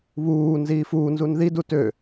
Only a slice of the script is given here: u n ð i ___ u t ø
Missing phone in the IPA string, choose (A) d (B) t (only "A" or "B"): A